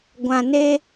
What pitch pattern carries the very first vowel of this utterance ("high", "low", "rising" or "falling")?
low